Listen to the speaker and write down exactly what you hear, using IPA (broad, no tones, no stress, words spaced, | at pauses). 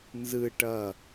nzɯ ʈʌ